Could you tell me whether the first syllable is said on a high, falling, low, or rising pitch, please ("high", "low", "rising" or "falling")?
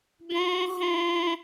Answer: high